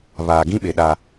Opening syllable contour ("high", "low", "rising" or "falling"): low